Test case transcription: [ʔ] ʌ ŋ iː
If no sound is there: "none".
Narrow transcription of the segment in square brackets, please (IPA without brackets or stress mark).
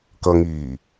k